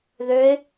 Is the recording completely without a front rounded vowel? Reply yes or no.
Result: no